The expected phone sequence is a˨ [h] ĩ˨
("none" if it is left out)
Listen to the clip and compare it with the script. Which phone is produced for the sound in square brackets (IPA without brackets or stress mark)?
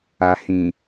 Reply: h